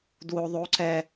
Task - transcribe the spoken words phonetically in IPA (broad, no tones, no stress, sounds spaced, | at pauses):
d w o ðˤ o ǀ ɛ